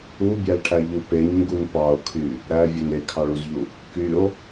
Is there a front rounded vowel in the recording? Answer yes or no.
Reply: yes